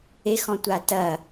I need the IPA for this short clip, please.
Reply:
e x ɔ̃ tʷ a t ɐ

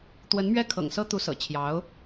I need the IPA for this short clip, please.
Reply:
t̪ w ə˧˥ n m ɥ ɛ˥˩ kʰ ɤ̰˨˩ ŋ s ɤ˥ t̪ u˧˥ s ɤ̰˨˩ t͡ɕʰ j ɑ˧˥ ʊ̯

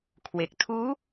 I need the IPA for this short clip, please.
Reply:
kʰ w e˨˩ k̚ tʰ uː˦˥

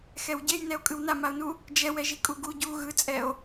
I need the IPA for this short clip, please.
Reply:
x ɛ w ɟ e j n ɛ o̯ kʼ ɯ w n a m a o̯ n u | d͡ʒ ɛ w ɛ ʒ i kʼ u ɡ u ɟ u ɣ ɯ t͡sʼ ɛ o̯

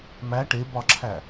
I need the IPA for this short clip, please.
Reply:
m æ ʈ e b ɒ ǁʰ æ

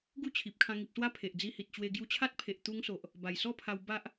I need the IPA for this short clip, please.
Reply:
ɡ u˥˧ t͡ɕʰ i˨ p̚ kʰ ã˧ ŋ i˨ p̚ s w a˥˧ pʰ e˨ ʔ d͡z i˧ h i˨ t̚ t͡ɕ w e˧ ɡ j u˧ t͡ɕʰ a˦ t̚ pʰ e˨ ʔ t̪ u˧ ŋ s o˨ ʔ | b a˨˩ j s ɔ˥˧ pʰ a˧ w b a˦ ʔ

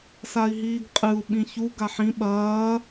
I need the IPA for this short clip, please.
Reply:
s a i̯ ɦ iː ɡ qʼ ɨ u̯ ɓ ĩ ç u ɡ a ħ ĩ ɓ ɐː

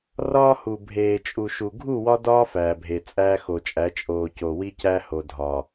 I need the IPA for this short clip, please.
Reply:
r ɒː˦ h u˨ bʱ eː˨ t͡ʃʼ u˨ ʃ u˨ ɡʱ u˦˨ w ɒ˦ d ɒː˦ f æː˨ bʱ e˨ t͡sʼ æː˦ x o˨ t͡ʃʼ æ˨˦ t͡ʃʼ oː˨ c o˨ w i˦ c æ˦ h o˨ dʱ ɒː˨

